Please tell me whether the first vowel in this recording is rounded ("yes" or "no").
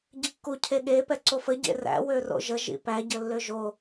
no